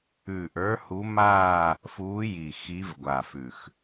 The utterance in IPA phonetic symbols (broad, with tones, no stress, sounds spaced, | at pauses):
ʉː˨˩ ʔ ə˞˨˦ h u˨˦ m aː˥˧ | f uː˨˦ j i˨˩ x i˨˦ v ɡʷ a˨˩ f ʉ˨˩ x